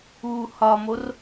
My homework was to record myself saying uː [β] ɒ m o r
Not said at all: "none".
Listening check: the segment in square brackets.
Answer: h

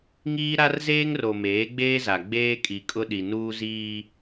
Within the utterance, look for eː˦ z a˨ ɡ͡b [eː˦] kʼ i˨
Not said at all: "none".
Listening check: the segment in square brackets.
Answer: eː˦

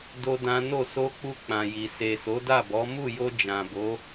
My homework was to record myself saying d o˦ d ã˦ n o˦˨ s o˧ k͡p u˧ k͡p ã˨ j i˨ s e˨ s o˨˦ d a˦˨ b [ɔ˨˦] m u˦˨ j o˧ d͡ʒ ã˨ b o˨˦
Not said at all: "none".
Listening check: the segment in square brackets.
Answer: ɔ˨˦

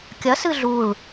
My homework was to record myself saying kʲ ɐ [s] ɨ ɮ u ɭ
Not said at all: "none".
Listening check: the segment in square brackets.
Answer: s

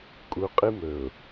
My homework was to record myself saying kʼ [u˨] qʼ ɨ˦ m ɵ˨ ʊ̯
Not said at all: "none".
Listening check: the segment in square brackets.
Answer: u˨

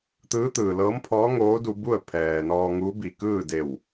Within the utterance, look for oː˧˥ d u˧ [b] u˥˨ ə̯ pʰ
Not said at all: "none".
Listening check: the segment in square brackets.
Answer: b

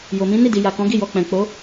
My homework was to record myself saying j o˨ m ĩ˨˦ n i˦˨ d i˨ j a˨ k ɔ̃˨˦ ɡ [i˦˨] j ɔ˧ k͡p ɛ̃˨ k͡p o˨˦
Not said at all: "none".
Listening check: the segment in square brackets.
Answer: i˦˨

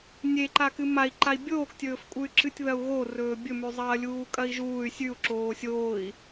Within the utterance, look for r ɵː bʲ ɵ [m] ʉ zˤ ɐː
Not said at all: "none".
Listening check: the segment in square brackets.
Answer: m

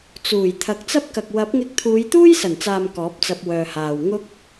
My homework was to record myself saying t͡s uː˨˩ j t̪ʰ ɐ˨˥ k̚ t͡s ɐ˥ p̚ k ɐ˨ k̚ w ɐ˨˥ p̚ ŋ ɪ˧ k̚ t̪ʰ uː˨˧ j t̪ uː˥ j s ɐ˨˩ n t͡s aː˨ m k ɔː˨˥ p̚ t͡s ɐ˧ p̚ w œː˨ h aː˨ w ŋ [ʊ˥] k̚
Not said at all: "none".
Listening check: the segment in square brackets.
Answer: ʊ˥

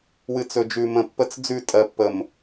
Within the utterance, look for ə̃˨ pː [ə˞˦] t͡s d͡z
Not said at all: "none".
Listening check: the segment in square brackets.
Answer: ə˦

